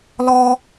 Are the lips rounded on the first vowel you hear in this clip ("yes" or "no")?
yes